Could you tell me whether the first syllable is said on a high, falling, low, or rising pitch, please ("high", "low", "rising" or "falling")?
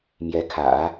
rising